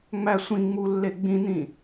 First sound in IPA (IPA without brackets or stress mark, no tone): ŋ͡m